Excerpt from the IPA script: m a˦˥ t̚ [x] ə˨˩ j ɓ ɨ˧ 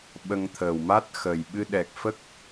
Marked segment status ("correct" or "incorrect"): correct